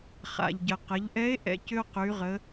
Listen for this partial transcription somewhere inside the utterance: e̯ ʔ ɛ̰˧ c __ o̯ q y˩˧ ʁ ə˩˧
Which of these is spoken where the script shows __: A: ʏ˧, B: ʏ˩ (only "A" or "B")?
A